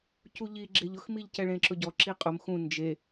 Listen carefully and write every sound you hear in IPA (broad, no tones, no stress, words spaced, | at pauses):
cuʎiɡ͡ǁeʎ ʊxmiʎcɛ ɭẽǁʊɟɔ ǁiqʼʊm xũ nd͡ʒe